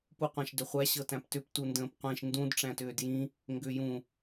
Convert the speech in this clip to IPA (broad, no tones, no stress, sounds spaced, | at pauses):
p u qʷ æ̃ ʃ d ʏ χʷ æ ɕ ɤ t æ̃ p t ʏ p t u n d ə̃ː p qʷ ĩ ʃ n d ũ d ʈ͡ʂ æ̃ t ʏː d j ĩ | ŋ ɡ ʏ j ũ